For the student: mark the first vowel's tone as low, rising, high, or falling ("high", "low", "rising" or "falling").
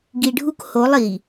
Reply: low